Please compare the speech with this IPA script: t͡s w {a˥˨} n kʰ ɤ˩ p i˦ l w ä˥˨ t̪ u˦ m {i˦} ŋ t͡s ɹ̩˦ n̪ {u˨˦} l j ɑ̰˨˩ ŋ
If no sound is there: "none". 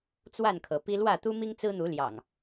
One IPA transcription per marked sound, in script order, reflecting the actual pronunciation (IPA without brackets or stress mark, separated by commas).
a˥˨, i˦, u˨˦